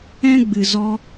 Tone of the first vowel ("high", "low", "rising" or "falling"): high